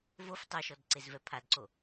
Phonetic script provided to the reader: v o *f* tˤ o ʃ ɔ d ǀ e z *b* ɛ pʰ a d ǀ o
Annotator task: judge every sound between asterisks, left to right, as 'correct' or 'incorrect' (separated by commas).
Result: correct, incorrect